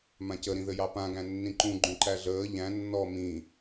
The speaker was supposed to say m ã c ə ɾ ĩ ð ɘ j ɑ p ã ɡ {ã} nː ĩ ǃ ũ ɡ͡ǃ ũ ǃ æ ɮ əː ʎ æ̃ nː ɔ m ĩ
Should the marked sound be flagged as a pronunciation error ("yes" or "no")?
yes